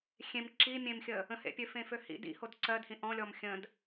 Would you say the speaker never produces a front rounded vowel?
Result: no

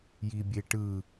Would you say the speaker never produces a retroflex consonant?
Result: no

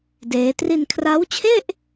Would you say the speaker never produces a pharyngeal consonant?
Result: yes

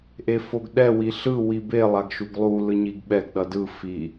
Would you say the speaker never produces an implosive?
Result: no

